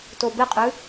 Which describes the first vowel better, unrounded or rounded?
rounded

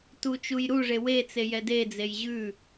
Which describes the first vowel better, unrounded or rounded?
rounded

